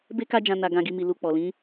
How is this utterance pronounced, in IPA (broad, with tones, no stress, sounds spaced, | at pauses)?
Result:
b e˦ k a˦ d͡ʒ ã˧ n a˧ ɡ ã˧ ɡ i˧ m i˨ l u˧ k͡p ɔ˨ l ĩ˨˦